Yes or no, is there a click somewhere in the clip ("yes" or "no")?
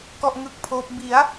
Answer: no